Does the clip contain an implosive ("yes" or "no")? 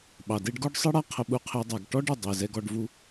yes